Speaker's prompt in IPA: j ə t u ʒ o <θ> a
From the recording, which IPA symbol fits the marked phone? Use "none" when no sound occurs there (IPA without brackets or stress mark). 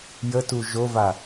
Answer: v